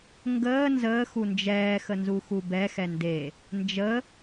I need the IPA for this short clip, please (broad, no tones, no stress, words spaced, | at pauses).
ŋɡəː nzəː xund͡ʒɛː xənzuxubɛ xɛnde | nd͡ʒə